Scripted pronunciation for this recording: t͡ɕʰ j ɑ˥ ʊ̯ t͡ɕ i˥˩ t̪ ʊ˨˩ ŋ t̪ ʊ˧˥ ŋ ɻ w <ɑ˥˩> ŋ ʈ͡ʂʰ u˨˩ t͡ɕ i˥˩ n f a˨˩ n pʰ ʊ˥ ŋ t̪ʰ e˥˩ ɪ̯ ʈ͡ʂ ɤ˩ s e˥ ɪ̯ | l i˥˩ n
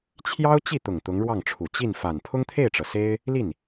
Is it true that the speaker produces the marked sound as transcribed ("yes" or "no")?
yes